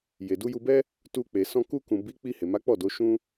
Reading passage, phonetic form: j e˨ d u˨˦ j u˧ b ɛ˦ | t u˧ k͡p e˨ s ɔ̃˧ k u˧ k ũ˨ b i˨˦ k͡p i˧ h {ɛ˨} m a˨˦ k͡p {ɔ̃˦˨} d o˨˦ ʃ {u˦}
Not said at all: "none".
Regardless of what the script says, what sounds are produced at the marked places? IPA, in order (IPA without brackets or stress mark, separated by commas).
e˨, ɔ˦˨, ũ˦